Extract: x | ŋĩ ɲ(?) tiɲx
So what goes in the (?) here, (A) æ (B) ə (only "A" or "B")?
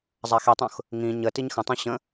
B